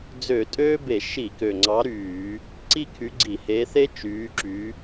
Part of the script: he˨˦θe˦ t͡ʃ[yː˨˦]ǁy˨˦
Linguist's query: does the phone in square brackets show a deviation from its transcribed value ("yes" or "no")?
no